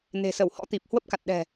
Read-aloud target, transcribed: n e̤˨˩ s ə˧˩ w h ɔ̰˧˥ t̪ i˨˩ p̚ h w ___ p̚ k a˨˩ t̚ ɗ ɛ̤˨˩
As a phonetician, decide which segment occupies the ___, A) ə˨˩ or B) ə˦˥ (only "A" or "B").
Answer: B